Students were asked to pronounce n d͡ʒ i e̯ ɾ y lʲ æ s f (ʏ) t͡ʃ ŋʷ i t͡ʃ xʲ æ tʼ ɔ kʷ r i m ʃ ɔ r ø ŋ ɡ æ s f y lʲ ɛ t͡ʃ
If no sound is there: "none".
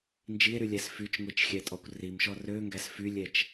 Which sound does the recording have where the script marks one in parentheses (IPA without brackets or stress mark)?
y